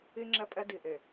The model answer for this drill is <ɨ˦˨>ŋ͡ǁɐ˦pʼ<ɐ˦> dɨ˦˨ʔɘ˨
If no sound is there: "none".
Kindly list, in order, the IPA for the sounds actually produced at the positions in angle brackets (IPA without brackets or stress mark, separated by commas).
ɨ˦, ɐ˦